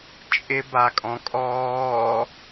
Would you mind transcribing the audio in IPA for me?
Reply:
t͡ʃʼ ɪ b a kʼ ɔ̃ kʼ ɔː

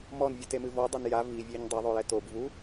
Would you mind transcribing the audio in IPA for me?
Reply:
m ɔ n vʲ ɨ t e m ɨ v ɔ dˤ ɐ n j a v i vʲ e ɲ dˤ ɘ ðˤ o j ɛ t o b v u

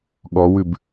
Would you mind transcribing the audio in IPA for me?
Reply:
ɠ ɔ w ʉ b

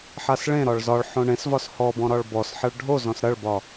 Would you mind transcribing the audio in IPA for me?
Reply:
ħ a s ɭ ẽ ɾ ɒ ɭ z ɒ ɭ ħ õ ɳ ẽ s v ɒ s h ɔ b ɔ̃ ɾ ɒ ɭ b ɔ s ħ ɐ ɭ ɖʱ o z ɔ̃ s ɾ ɐ ɭ b ɒ

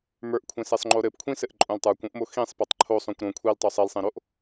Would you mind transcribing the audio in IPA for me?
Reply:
m ə˞ ʔ kʷʰ ẽ s e sˤ ŋ͡ǃ o ɾ ɘ p kʷʰ ĩ s ɘ ʔ ǃʼ õ l tˤ ə˞ kʷ õ ʔ m o x ĩ sˤ p e tˤ ǃʰ o sˤ õ kʷ ɾ õ kʷʰ i l tˤ o sˤ i l sˤ ẽ ɾ o ʔ

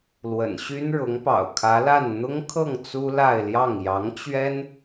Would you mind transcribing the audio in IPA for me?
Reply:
l w ə̰˨˩ n ɕ y˥ n ɻ ʊ˧˥ ŋ p ɑ̰˨˩ ʊ̯ kʰ ä˧˥ l a˥˩ n n̪ ʊ˥ ŋ kʰ ɤ˥˩ ŋ t͡s u˥ l a˥˧ ɪ̯ l j ɑ˥˩ ŋ j ɑ˧˥ ŋ t͡ɕ ɥ ɛ˥ n

